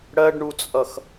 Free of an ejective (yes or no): no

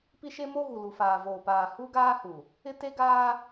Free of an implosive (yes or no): yes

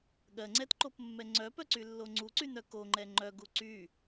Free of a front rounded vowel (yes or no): no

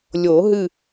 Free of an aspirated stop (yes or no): yes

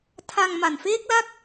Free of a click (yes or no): yes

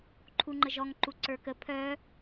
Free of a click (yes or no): no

